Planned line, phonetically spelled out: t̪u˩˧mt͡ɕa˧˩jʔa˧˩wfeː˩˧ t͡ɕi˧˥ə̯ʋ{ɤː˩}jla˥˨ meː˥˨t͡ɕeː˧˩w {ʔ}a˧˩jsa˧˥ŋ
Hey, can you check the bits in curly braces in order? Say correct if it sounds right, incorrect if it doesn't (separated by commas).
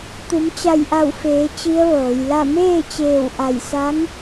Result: incorrect, correct